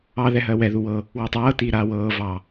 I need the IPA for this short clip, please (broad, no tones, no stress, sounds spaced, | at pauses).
ɑ ð ɛ ɦ ɜ w ɛ ð u w ɤ | w u tˤ ɤː t iː ɾ aː w ɤː v ɑ